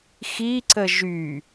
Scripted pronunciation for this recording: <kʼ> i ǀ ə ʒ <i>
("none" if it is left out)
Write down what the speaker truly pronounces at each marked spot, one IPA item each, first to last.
x, y

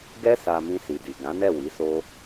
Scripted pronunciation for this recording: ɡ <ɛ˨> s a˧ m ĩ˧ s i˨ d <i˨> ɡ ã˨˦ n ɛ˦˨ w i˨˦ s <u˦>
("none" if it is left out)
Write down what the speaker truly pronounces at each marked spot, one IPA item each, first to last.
ɛ˦, i˨, o˦

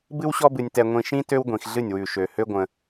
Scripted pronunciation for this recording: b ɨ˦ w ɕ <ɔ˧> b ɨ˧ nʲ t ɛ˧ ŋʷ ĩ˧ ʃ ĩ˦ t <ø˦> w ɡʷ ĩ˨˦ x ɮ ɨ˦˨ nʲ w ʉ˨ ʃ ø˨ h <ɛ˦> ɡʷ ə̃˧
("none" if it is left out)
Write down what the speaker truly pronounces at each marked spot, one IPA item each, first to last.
ɔ˦, ø˦, ø˦

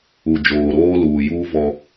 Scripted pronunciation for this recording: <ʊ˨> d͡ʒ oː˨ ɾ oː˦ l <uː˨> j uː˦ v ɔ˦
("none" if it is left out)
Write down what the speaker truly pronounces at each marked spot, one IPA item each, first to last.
u˨, uː˨

